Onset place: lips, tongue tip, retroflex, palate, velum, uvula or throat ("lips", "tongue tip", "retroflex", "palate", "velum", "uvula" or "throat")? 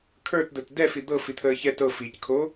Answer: velum